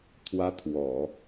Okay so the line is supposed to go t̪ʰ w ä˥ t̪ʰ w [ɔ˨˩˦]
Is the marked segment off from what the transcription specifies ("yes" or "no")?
no